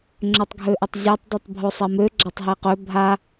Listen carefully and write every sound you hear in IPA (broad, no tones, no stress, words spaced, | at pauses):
ŋ͡ǁøtˤɡʱøʔøtˤzʲetˤ dˤitˤbʱosˤɛmø ɡ͡ǁatˤɦeqø bʱa